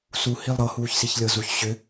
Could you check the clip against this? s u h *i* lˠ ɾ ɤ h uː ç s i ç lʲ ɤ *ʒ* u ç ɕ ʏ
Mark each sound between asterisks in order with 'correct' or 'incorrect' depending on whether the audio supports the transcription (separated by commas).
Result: correct, incorrect